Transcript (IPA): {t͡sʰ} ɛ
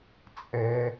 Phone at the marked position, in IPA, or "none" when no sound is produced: t͡sʼ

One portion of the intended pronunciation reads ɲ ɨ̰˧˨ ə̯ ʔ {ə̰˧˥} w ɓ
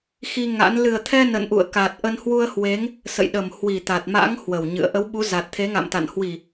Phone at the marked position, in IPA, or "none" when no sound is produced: ə˨˦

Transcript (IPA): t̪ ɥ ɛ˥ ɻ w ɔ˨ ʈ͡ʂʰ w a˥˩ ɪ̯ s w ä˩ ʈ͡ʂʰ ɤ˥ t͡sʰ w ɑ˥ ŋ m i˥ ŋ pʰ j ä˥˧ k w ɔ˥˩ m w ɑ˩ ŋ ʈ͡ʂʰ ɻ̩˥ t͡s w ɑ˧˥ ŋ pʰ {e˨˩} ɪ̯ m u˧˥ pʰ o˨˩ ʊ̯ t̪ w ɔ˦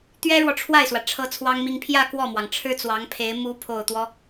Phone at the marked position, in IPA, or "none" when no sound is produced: e˧˥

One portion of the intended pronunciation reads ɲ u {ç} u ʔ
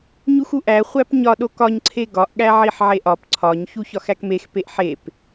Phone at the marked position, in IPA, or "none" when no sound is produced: x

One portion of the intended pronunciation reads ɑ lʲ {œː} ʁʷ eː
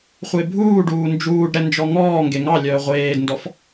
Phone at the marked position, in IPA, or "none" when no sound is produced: œː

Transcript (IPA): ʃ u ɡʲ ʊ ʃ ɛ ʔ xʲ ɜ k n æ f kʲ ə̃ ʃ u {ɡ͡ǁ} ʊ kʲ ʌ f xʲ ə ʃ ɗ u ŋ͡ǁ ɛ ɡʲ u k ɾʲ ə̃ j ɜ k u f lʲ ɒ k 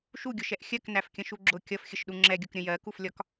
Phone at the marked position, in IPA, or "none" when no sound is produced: ɡ͡ǁ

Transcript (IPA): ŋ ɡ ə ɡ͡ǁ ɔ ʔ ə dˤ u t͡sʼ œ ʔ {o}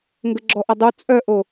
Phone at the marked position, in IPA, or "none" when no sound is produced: o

